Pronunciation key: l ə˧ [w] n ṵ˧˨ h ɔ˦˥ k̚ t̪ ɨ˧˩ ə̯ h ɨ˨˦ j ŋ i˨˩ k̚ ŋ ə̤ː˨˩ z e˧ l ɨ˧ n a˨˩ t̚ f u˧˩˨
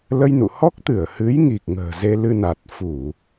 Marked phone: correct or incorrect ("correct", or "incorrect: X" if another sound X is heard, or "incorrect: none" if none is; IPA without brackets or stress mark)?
incorrect: j